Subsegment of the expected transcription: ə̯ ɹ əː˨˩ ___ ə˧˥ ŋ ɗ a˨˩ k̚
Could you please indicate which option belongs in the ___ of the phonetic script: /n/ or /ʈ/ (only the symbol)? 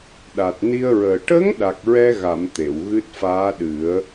ʈ